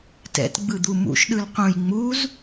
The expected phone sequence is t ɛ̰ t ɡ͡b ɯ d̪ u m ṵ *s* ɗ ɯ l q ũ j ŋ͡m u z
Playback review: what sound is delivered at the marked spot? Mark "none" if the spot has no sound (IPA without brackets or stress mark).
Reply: ʃ